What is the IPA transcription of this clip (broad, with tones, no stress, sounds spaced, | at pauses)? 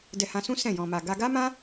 d ɛ˧ h ã˧ s ũ˦ s ɛ̃˦˨ j ɔ̃˧ m a˧ ɡ a˦ ɡ a˦ m ã˦